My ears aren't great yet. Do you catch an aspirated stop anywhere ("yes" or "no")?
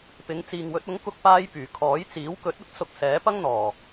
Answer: yes